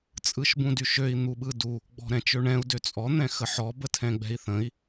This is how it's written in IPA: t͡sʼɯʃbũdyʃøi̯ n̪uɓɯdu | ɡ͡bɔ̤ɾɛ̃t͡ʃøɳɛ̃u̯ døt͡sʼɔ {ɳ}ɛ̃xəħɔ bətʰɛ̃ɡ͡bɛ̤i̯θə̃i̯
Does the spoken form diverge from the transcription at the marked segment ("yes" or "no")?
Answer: yes